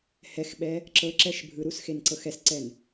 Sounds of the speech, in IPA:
h ɛ x ɓ ɛ | ǁ ɤ ǁ ɛ ʃ bʱ ɯ ɾ u s x e n ǀ ɤ x ɛ s ǀ ɛ n

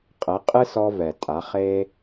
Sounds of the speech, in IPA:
qʼ ɛ˩˧ qʼ ɨ˧ s ɔ˧ v ɛ˩ tʼ a˩˧ χ e˧

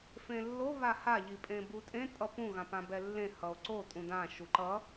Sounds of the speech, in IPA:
f ẽ lː o β a h a ʎ i pʼ ẽ b u tʼ ẽ tʼ ʌ p ũ ɣ ã p ã b ɛ lː ẽ h ʌ o̯ ǀ o tʼ ũ d ã ʃ u ǃ ʌ

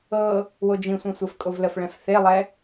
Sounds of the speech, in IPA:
ɤ | w o d͡ʒ ĩ sʷ ɛ̃ sʷ e f kʼ o v l ə f ɭ ɛ̃ f θ e lˠ ɛ

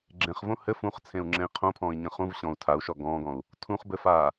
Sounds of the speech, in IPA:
ɡ͡ǁ ẽ χ v õ h ɘ f ũ χ t͡sʰ ẽ u̯ ŋ͡ǁ ẽ i̯ qʰ õ pʰ ɔ̃ː i̯ ɲ ə̃ χ ũ v ɕ ɔ̃ u̯ tʰ a u̯ ʃ ɔ ɡ ɔ̃ː ɡ ɔ̃ u̯ | tʰ ũ χ b ɘ f aː

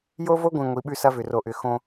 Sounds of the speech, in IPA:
j o˦ v o˦ ɡʷ ĩ˨ ŋʷ i˨˦ ɓ ʉ˦ s ɐ˦ v ʏ˨ r o˨ ʔ ʏ˨ x õ˦

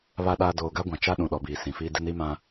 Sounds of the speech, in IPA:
β a˨ ɗ aː˨ d oː˨ ɡ a˦ ɡʷ ã˨ t͡ʃ a˦ ɗ ũ˨ ɗ ɔ˨ b iː˨ s ĩ˨ f iː˦ d ɪ˦ n i˦ m ã˦

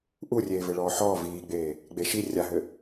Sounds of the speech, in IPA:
ʔ u rʲ eː v ɘ ɭ ɔː ħ ɔː v iː ɡ͡b eː | ɡ͡b e ʃ i rʲ a ɦ ɘ

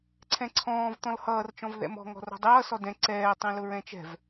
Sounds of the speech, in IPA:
ǀʰ ɛ̃ ǀʰ ɔ̃ː v t̪ ɔ̃ l h ʌː r t͡ʃ ɔ̃ v ð ɛ̰ m ɔ̤ ŋ ɔ̤ r ɔ̤ dˤ ʌː s ɔ d ɛ̃ ǀ ɛː tˤ ɛ̃ l ʊ ɹ ɛ̃ t͡ʃ ɛ̤ v

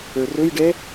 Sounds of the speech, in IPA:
ə˞ r ɵ j ɖ ɛ

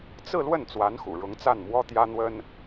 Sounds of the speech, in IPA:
t͡s ɹ̩˥˧ l w ə˥˩ n t͡s w a˧˥ n x ṵ˨˩ ɻ ʊ˧˥ ŋ t͡s a˥˩ n m w ɔ˥ t̪ j ä˥ n̪ w ə˥ n

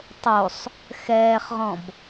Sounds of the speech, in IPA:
tˤ o sˤ | x ɛː χ ʁ ɔ̃ b

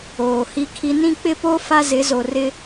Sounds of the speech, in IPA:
oː˨ h i˦ kʰ i˦ n ĩ˦ k͡p ɪ˦ p o˦ f a˦ z ɪ˨˦ z o˨ r ɪ˦

